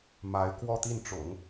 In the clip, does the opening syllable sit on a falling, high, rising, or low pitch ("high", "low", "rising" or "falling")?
rising